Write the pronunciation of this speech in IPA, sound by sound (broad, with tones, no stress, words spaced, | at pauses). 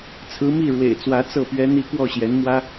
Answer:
t͡sʰɹ̩˧˥mi˥˩ ɻwḛ˨˩ɪ̯t͡swä˧˥ t͡sɤ˥˩pɥɛ˥n̪i˥ kwɔ˥˩ɕjɛ˧˥nmwä˥